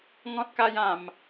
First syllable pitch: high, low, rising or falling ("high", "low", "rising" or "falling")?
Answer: high